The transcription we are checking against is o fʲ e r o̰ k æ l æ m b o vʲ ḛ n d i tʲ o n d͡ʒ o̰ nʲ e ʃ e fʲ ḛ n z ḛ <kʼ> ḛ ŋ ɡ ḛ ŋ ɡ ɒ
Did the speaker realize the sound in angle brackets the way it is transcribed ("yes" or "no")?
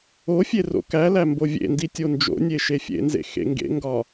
no